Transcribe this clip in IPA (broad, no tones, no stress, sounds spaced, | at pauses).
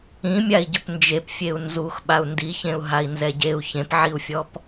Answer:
ĩ mʲ a i̯ ɟ ʏ p n d͡ʒ e p fʲ e u̯ n z u x ɓ a u̯ n d i ç ẽ u̯ ɦ a i̯ n z ɛ ɟ e u̯ ç ẽ p ʕ i u̯ fʲ ɔ p